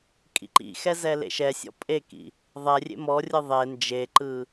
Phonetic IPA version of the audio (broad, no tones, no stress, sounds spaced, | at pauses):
kʼ ḭ ǃ ḭ x ɛ z ɛ l ḛ ʃ ɛ sʲ ɔ̰ pʼ e k ḭ | ðˤ ɛ rʲ ḛ m ɔ rʲ ɯ ðˤ e n d͡ʒ e ǃ ɯ